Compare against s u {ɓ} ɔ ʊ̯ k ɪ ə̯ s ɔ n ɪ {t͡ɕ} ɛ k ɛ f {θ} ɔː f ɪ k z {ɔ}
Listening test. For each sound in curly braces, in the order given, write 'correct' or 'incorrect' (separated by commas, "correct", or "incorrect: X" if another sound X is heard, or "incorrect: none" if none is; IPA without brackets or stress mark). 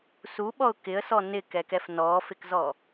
correct, incorrect: k, incorrect: n, correct